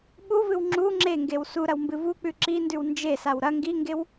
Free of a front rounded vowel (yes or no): yes